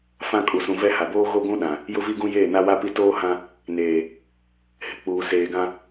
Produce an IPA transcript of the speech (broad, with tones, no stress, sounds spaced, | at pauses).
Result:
f ã˦ kʼ u˨ s ũ˨ v ɛ˦ h a˨ b oː˦ ɣ o˦ ɡʷ ũ˦ ɗ ã˨ | j ʊ˦ v i˦ ɡ ũ˦ j eː˦˨ n a˦ w a˦ p i˦˨ t oː˦ h ã˦ | n eː˨ | h ɪ˨ k͡p uː˨ s eː˨ ɡ ã˦